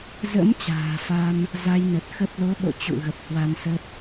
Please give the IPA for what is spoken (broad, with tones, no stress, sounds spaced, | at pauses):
z ə̰˧˥ m t͡ɕ a̤ː˨˩ f a˧ m | z a˧ j n ə˨˩ t̚ x ə˦˥ p̚ l o˨˦ ɓ o̰˧˨ t͡ɕ ṵ˧˨ ɣ ə˨˩ p̚ h w a˧ n s ə˦˥ p̚